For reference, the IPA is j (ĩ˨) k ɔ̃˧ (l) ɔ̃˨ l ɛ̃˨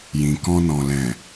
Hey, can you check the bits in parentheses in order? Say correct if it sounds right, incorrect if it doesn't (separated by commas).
correct, incorrect